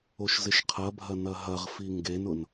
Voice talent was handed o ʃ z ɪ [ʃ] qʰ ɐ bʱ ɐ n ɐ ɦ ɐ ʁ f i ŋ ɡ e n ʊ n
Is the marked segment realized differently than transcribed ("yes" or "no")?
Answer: no